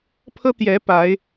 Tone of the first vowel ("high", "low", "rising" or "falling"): high